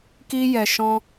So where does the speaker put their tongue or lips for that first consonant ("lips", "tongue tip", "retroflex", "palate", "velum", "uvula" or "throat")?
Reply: velum